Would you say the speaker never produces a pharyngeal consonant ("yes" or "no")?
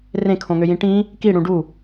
yes